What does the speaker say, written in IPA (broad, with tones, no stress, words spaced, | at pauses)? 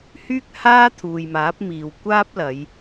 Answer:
hyː˥k̚haː˥ t̪ʰuː˨jmaː˨˥p̚miː˨w kʷaː˥p̚ lɐ˨˧j